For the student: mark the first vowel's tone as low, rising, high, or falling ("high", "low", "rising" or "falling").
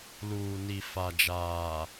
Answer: low